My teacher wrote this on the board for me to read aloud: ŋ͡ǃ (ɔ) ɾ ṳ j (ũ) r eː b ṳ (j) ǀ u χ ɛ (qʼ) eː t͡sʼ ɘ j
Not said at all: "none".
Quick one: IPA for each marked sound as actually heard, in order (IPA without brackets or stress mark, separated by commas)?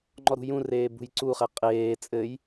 ɔ, ũ, j, qʼ